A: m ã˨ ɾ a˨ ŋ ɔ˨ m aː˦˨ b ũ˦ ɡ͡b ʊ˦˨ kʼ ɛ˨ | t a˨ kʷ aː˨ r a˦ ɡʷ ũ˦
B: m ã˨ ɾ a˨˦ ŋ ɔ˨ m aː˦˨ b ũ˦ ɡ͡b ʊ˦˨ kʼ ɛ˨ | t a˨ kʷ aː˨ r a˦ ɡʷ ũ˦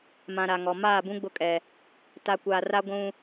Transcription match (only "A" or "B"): A